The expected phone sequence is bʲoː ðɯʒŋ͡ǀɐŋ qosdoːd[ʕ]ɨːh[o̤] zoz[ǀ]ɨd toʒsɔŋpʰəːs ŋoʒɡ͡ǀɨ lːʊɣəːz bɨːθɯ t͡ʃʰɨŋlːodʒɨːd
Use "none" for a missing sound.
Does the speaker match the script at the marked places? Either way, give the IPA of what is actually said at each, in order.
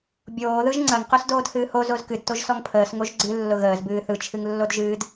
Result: h, o, k

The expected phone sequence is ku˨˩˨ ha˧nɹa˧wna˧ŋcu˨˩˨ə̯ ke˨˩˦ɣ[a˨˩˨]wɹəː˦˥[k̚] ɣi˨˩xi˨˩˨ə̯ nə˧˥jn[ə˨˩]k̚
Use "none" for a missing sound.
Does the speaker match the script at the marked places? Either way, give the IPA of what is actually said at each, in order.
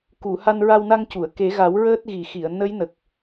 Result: a˨˩˦, t̚, ə˨˩

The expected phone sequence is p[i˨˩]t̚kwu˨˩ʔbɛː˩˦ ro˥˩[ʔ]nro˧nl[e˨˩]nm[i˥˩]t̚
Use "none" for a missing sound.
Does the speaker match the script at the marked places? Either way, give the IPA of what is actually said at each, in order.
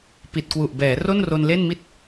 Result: i˨˩, none, e˥˩, i˥˩

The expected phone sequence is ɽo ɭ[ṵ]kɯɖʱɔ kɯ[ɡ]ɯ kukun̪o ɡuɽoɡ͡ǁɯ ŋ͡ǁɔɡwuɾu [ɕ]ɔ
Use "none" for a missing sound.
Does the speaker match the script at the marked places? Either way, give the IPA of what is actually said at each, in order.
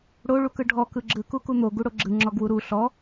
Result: u, ɡ͡ǁ, ɬ

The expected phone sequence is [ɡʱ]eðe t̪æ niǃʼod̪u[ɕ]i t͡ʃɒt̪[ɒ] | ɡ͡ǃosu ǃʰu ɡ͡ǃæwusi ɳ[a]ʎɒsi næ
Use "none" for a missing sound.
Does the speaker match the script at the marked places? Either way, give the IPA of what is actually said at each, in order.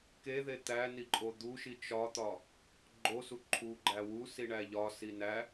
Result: k, ʃ, ɒ, æ

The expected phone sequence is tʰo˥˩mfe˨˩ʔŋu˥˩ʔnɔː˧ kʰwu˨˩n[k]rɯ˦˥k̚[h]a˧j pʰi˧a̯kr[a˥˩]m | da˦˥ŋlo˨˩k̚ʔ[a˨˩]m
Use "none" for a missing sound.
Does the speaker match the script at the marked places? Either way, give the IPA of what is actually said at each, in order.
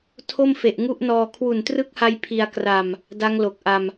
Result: t, h, a˧, a˧

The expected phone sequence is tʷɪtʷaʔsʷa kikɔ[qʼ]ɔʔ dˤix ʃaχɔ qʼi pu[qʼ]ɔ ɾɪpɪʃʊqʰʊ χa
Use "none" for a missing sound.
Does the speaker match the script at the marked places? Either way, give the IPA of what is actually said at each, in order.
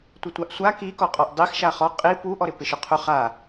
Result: qʼ, ʔ

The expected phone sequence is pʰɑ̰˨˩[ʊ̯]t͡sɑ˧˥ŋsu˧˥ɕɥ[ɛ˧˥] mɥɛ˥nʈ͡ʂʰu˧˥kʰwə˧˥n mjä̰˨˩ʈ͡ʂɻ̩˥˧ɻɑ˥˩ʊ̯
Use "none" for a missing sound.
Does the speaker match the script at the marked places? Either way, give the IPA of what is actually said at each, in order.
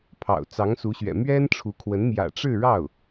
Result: ʊ̯, ɛ̰˨˩

